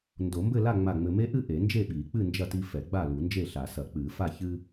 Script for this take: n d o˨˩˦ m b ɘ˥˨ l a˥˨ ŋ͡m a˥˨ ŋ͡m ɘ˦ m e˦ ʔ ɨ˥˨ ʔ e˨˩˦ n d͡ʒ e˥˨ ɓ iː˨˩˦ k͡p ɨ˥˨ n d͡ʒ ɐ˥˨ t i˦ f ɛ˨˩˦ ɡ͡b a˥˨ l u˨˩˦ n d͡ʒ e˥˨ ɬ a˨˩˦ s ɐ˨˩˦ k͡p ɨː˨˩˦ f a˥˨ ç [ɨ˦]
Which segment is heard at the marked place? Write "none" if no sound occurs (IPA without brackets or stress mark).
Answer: ɨ˦